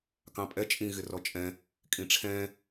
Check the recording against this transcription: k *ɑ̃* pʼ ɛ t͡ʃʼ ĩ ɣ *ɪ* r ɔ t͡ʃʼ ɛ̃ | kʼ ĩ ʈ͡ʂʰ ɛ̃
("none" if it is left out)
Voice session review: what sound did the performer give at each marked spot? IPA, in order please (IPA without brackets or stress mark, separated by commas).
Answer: ɑ̃, ɪ